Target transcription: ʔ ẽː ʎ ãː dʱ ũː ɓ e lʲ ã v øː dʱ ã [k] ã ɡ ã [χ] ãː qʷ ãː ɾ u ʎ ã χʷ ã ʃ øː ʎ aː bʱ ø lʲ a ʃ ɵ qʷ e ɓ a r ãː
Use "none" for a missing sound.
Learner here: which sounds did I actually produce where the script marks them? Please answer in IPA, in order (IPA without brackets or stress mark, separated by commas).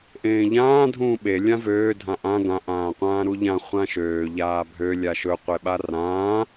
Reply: ʔ, ʔ